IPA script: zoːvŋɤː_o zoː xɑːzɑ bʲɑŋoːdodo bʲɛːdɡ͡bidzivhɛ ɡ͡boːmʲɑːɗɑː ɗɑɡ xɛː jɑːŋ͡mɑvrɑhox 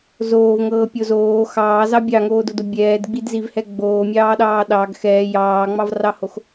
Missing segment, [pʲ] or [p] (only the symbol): pʲ